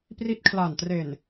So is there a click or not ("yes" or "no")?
no